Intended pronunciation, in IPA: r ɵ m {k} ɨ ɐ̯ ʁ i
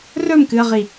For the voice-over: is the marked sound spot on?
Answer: yes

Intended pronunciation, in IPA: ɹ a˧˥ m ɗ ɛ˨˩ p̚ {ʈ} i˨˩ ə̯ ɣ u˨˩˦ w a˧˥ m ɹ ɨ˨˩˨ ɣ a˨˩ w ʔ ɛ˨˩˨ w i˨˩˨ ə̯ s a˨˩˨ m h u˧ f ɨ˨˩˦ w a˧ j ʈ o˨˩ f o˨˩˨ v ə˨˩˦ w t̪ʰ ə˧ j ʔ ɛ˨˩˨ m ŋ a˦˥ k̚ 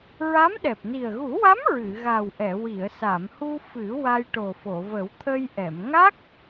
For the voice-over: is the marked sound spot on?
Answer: no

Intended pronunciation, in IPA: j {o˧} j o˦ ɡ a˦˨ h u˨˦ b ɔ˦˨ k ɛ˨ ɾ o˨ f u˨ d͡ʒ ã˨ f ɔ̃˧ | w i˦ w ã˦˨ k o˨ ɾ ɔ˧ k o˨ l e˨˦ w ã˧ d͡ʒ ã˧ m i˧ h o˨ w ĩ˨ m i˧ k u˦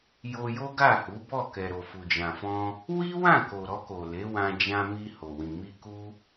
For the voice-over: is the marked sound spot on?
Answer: yes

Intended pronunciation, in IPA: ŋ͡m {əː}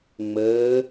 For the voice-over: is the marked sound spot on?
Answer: yes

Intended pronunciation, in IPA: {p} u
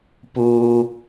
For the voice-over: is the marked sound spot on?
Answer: yes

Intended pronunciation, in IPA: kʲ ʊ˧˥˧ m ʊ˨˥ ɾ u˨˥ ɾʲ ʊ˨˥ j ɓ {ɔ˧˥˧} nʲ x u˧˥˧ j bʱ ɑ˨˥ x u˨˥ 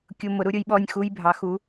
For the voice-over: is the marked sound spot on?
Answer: yes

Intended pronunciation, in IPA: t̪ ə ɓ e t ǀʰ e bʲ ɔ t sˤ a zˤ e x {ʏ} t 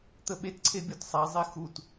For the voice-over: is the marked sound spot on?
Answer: no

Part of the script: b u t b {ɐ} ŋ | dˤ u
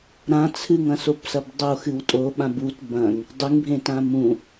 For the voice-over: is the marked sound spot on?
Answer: no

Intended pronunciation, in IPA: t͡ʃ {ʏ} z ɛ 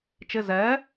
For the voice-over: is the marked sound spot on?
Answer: no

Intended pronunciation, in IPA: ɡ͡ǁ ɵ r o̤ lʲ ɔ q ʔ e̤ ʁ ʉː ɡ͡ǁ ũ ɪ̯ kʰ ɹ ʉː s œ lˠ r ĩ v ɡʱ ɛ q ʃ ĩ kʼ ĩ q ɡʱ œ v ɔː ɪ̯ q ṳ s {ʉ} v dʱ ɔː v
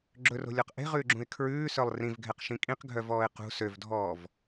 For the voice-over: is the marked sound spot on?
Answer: no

